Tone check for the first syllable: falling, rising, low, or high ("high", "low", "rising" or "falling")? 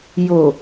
low